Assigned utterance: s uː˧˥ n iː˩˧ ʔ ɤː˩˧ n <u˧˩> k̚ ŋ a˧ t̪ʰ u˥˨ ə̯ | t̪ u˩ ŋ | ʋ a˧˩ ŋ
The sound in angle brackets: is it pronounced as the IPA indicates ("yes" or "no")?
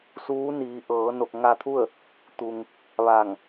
no